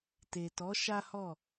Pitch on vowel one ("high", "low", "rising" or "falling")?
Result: low